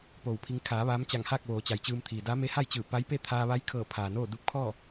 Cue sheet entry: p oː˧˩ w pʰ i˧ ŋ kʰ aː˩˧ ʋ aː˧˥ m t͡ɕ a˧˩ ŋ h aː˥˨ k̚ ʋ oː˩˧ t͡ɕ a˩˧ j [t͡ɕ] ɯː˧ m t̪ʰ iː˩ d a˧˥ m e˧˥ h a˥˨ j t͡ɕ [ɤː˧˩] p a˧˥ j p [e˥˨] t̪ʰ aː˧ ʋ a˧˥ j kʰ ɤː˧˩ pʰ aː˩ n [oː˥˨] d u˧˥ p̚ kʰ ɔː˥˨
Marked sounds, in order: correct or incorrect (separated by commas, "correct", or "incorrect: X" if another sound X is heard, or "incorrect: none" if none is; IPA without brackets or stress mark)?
correct, incorrect: ɯː˧˩, correct, correct